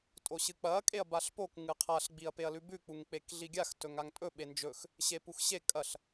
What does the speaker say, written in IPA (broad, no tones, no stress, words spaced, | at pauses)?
tʼoɕɨk͡pɐ kʼeɐ̯baɬpok ŋɨqʰaɬ ɡ͡biɐ̯peɐ̯lʉbʉ k͡puŋk͡pekɮiɡʲax tɵŋaŋtʼɵ ɓend͡ʒɵx | ɕepuxɕe kʼɐɬ